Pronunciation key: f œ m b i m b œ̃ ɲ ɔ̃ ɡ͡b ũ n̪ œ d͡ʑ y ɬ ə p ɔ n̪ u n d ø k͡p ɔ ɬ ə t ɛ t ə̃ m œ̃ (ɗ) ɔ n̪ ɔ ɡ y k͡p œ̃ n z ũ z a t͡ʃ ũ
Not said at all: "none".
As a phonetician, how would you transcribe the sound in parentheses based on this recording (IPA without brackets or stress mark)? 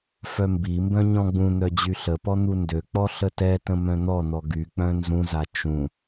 n̪